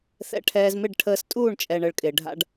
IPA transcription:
θ ɛ̰˧ ʈʰ ɛː˧ z m ɪ˦˨ ɖ ʈʰ əː˧ s tʼ uː˦˨ ɳ t͡ʃʼ ɛ˨ ɳ ə˨ ɭ kʼ ɪː˨ ɖʱ a̰˦ ɖ

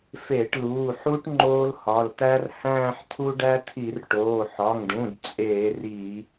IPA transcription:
f e˧˩˧ ʈ l uː˩˧˩ ħ u˦ ʈ ŋ͡ǃ oː˦ l h ɒ˩˧˩ l t̪ æ˦ r h æ̃ː˦˨ ħ t̪ʰ u˦ ɖ æ˦ t̪ʰ i˧˩˧ r ʈ oː˩˧˩ ħ ɒ˩˧˩ ŋ ɖ ũ˩˧˩ d t͡sʼ eː˧˩˧ r iː˧˩˧

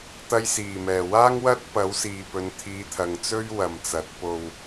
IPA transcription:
t̪ ɐ˧ j s iː˨˩ m ɛː˨˩ w aː˥ ŋ w ɐ˥ t̚ p ɐ˨˥ w s iː˨ p ɵ˨˧ n t̪ʰ iː˨˧ t̪ʰ ɐ˨ ŋ t͡s ɵ˥ ɥ w ɐ˨˩ m t͡s ɐ˨˥ t̚ p o˧ w

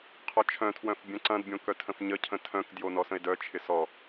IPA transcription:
qʰ ɔ t͡ʃʰ œ̃ tʰ w œ̃ f bʲ œ̃ ǀ ɐ̃ d bʲ õ k œ tʰ ə̃ f ɲ ə cʰ ə̃ tʰ œ̃ k d j o n ɔ s ə̃ e̯ d œ t͡ʃʰ ɪ s ɔ

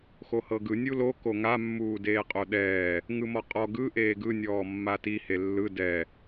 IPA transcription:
x o h ɤ ɡ ɯ nʲ u l o k o ŋ a mː uː d eː qʼ o ɗ ɛː | ŋ ɯ m ɔ qʼ ɔ ɡ ɯ ʔ eː ɡ ɯ nʲ ɔː mː a t i h e lː ɯ d ɛ

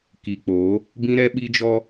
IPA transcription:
k i˨ k͡p oː˨˦ | b ĩ˦ ɾ ɛ˦ ɓ i˦ d͡ʒ ɔ˦

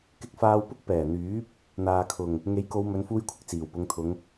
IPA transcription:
k ɪ˧ k̚ f aː˧ w p ʊ˥ k̚ p ɛː˨˩ n̪ yː˨˥ p̚ | n̪ aː˨ kʰ ʊ˨˩ ŋ | ŋ e˨˥ j k o˨˧ w m ɵ˨˧ n f uː˧ j kʷʰ ɪ˨ k̚ t͡s iː˨˩ w p ʊ˨˧ ŋ t̪ʰ ʊ˨˧ ŋ

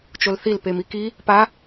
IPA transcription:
t͡ʃ o l θ i l p e m i k i | p a

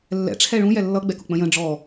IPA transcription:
lː ɛ̰ ʈ͡ʂʰ ɛ ɭ ũ j ɛ lː ʌ ɡ͡b ɛ k ʊ k͡p ə̃ j ə̃ ɖ͡ʐ ɔ

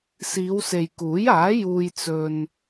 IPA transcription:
s iː˨˧ w s e˨ j k uː˨˥ j aː˨˥ j uː˥ j t͡s ɵ˥ n

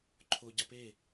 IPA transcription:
ǃʰ o ɟ a p e

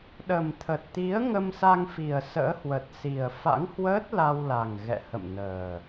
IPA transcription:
ɗ ə˨˩ m t̪ʰ ə˨˩ t̚ t̪ i˨˦ ə̯ ŋ ə˧ m s a˧ ŋ f i˨˩ ə̯ s ə̰ː˧˥ h w ə˨˩ t̚ s i˨˩ ə̯ f a̰˧˥ ŋ h w əː˦˥ t̚ l a˧ w l a˨˩ ŋ ɣ ɛ̰˧˨ h ə̰˧˨ m n əː˨˩

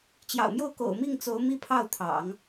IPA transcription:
t͡ɕ j ɑ̰˨˩ ʊ̯ m j o˥˩ ʊ̯ k o̰˨˩ ʊ̯ m i˥˩ ŋ t͡s o˧˥ ʊ̯ m i˥˧ pʰ ɑ˥˩ ʊ̯ t̪ʰ ɑ̰˨˩˦ ŋ

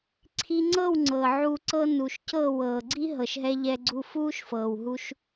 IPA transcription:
ǀʰ i˧ ŋ͡ǀ ɤ˦˨ w ŋ͡ǀ ɤ˨ ʕ u˧ ǀ ɤ˧ n u˨ ʃ c ɤ˦˨ w ɤː˨ ɡ͡ǀ i˦ ɦ ɤ˨ ʃ ɦ ɛ˧ ʎ ɛ˧ ɡ͡ǀ u˧ f uː˦ ʃ f ɤː˨ w ɦ u˧ ʃ

